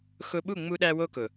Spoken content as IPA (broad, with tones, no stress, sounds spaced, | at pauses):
x ʊ˧ ɓ u˦˨ ŋ͡m u˧ ɗ æ˧ w o˧ k ʊ˨